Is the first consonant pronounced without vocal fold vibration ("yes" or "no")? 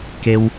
yes